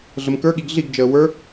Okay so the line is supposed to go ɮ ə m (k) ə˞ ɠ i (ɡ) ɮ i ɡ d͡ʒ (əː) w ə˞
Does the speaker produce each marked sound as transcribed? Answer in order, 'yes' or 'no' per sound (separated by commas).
yes, yes, yes